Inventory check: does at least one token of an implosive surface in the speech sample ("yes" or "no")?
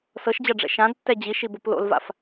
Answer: no